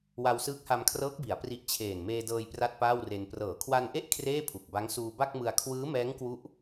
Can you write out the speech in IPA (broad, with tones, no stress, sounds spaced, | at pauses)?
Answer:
w a˧ w s ɯː˦˥ k̚ h a˧ m kʰ r ɤː˦˥ k̚ b i˩˦ a̯ p r i˦˥ ʔ t͡ɕʰ eː˨˩ n m eː˧ d ɤː˧ j p r a˥˩ t̚ p aː˥˩ w r e˧ n p r ɤː˩˦ kʰ w a˧ n ʔ e˥˩ ʔ kʰ r eː˥˩ pʰ u˨˩ k̚ b a˦˥ ŋ s uː˧ b a˥˩ k̚ m ɯ˧ a̯ kʰ w ɯː˦˥ m ɛː˦˥ ŋ k w u˦˥ ʔ